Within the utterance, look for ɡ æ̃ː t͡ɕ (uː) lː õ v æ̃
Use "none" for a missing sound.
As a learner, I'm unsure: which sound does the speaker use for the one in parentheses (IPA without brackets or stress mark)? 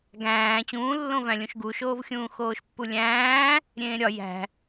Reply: ũː